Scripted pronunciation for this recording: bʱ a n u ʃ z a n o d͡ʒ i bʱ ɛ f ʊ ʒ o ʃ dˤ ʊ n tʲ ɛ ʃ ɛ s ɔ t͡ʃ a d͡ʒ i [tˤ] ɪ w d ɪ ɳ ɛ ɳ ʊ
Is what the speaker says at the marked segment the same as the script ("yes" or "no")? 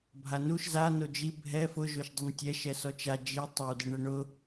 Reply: yes